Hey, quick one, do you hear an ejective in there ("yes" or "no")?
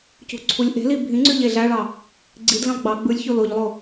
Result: no